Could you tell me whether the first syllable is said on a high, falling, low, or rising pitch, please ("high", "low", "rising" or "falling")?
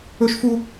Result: high